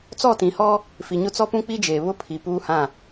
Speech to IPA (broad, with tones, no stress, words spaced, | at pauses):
t͡sɔ˦˨tĩ˨hɔ˦ | fi˨ɲʊ˦t͡sɔ˦ pũ˦k͡pi˦d͡ʒeː˨ βʊ˦pʰi˨ puː˦hã˦˨